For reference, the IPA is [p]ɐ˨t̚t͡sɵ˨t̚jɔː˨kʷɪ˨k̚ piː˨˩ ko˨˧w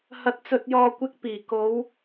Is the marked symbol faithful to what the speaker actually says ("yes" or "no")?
no